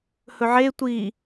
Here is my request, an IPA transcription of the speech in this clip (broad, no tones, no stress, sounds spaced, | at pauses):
h ɵ ʕ e tʷ i